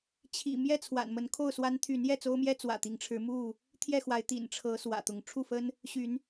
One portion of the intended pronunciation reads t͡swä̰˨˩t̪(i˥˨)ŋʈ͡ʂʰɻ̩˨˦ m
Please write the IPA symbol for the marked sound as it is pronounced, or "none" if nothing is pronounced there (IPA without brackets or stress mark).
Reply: i˨˦